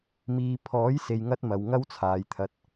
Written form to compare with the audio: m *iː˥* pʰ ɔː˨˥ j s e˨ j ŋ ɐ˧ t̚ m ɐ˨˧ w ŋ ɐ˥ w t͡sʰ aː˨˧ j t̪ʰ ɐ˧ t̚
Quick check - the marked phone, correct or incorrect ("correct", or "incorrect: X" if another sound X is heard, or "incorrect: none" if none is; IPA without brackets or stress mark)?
incorrect: iː˧